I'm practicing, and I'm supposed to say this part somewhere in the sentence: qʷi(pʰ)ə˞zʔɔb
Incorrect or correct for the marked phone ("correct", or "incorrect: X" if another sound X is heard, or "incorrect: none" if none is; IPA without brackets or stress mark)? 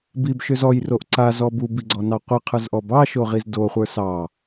incorrect: qʰ